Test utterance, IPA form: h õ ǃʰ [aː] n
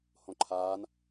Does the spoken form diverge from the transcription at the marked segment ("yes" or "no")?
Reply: no